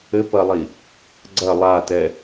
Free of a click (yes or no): no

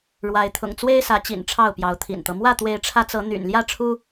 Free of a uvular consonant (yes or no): yes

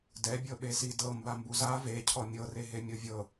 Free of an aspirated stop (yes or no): no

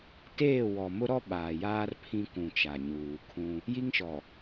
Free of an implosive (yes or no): no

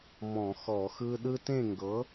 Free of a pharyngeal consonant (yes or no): yes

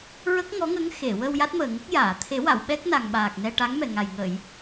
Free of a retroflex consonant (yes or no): no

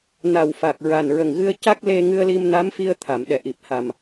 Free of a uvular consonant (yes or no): yes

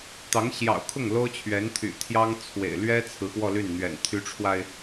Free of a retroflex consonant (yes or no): no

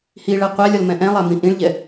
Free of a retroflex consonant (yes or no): no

